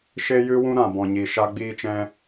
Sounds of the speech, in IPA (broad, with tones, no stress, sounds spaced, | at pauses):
ʃ e˦ j ɨ˦ w ũ˦ ɾ ã˨ b ɔ̃˨ ɲ i˨ ʃ a˦ ɡ͡b iː˧ t͡ʃ ɛ̃˧